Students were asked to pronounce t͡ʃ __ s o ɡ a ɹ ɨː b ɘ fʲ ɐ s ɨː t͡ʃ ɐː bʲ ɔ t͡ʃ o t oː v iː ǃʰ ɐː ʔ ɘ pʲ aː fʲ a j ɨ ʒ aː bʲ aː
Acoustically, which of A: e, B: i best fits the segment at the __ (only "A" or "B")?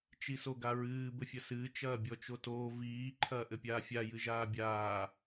B